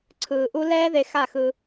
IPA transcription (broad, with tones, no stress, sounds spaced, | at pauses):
ǀʰ ɯː˨ ʔ u˦ l ɛː˦ ð e˧ x a˦˨ x ɯ˧